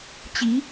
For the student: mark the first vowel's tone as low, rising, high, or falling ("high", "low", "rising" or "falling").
rising